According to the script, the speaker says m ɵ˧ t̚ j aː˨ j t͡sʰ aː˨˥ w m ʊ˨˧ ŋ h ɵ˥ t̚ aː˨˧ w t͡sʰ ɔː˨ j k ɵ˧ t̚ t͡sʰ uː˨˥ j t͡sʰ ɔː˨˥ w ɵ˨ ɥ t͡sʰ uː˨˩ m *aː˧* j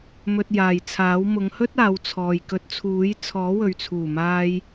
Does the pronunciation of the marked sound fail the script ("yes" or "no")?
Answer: no